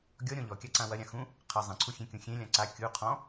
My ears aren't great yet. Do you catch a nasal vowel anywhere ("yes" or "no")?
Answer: yes